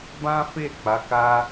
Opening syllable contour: high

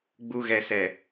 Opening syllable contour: low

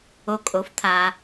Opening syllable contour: low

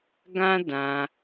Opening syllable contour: high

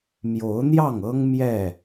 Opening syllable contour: rising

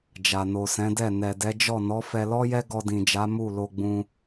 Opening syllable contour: low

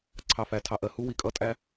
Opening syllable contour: low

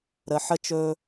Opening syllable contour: low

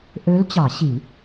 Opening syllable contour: rising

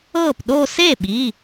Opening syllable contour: falling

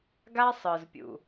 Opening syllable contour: high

